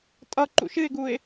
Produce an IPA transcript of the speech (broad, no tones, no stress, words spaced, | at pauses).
tʼʌ ǃṵʃɨɪ̯ɡuɪ̯